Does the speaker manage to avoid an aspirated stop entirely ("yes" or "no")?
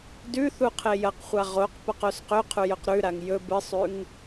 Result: no